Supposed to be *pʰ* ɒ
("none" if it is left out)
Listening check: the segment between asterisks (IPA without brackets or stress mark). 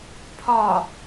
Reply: pʰ